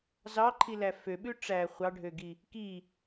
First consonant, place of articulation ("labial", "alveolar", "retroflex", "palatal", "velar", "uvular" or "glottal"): alveolar